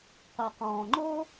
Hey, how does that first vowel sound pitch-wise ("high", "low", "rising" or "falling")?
low